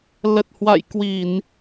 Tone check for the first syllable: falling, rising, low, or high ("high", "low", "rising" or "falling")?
low